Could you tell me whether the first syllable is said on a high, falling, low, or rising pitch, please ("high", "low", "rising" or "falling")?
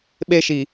high